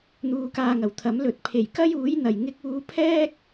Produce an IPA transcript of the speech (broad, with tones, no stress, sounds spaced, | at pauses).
n̪ uː˧ k aː˧ ŋ ɐ˨˩ w t̪ʰ ɐ˨˥ m l ɵ˨˥ t̚ pʰ e˨˩ j k ɐ˥ j uː˨˥ j n̪ ɐ˨ j ŋ ɪ˧ k̚ uː˧ pʰ ɛː˥ k̚